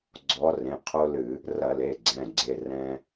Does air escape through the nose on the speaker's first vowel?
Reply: no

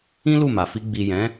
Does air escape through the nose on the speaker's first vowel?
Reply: yes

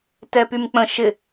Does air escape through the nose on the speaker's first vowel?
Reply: no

